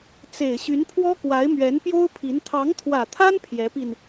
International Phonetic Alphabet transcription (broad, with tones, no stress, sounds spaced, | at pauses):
t͡s e˨˩ ɪ̯ ɕ y˧˥ n pʰ w ɔ˥ k w a˧˥ ɪ̯ m ɥ ɛ˧˥ n p j o˥ ʊ̯ pʰ i˧˥ n t̪ʰ ɑ˧˥ ŋ t̪ʰ w ä˨˩ t̪ʰ a˥ n pʰ j ɛ˧˥ p i˧ n